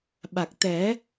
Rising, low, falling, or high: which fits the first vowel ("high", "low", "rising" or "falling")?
low